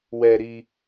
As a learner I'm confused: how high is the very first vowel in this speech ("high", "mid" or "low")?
mid